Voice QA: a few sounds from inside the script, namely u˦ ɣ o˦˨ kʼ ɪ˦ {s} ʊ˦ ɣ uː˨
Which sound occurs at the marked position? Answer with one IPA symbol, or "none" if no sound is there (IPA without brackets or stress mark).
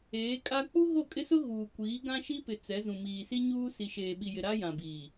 s